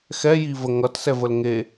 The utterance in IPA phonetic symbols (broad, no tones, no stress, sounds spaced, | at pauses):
x ɛ j i v ə ŋ ʌ t s ɛ v ə l ŋ e